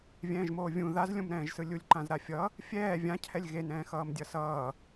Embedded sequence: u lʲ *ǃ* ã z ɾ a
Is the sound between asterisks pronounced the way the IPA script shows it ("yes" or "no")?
yes